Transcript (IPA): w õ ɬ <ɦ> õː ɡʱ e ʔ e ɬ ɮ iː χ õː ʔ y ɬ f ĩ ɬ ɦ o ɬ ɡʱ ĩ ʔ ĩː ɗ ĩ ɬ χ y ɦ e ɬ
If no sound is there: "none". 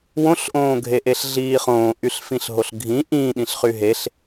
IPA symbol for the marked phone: ʔ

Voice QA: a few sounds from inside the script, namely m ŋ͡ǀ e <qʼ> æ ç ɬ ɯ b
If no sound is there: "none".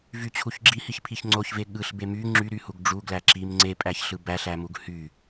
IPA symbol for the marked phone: pʼ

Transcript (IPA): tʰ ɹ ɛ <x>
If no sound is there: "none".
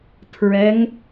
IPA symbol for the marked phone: ŋ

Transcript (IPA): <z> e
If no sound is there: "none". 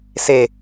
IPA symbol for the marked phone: s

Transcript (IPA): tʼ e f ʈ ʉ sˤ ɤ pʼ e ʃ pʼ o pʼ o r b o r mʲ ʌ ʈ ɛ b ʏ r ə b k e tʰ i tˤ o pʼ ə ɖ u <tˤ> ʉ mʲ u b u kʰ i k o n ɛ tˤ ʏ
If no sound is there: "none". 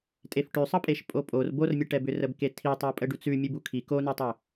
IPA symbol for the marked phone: t͡s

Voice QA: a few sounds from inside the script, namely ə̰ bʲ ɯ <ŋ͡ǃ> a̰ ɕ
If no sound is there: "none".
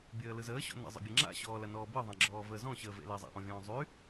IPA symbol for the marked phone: ŋ͡ǁ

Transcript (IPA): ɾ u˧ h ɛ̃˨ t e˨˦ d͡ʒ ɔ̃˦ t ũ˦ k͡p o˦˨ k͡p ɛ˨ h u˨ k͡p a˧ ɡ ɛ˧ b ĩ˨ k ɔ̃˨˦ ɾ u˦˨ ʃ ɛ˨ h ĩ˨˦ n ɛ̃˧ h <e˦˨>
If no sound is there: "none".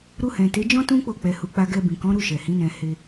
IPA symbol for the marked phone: e˧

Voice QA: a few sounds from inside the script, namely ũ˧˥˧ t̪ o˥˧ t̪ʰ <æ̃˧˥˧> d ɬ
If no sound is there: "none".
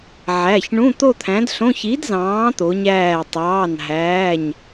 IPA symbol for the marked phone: æ̃˨˥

